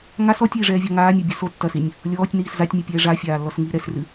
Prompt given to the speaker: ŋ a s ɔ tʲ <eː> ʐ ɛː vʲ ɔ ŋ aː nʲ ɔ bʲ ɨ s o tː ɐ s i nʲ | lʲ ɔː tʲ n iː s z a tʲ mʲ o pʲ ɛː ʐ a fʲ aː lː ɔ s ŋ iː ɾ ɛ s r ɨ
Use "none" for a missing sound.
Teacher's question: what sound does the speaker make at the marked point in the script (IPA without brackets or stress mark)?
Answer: iː